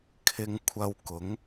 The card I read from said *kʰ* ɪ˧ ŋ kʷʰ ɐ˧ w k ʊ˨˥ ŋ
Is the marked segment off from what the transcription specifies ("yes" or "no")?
no